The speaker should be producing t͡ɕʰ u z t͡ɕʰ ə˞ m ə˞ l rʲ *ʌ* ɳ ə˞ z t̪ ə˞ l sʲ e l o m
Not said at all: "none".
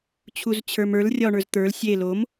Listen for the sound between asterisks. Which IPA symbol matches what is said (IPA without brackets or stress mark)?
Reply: ɒ